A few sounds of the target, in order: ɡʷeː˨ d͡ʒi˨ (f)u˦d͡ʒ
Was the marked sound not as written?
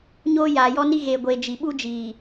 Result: yes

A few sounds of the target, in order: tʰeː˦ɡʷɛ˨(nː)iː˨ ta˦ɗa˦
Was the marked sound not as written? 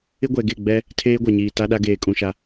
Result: yes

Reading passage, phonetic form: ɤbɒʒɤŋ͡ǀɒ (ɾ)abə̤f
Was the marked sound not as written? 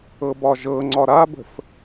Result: no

